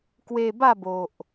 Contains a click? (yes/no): no